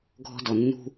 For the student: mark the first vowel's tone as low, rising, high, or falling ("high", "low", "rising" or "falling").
high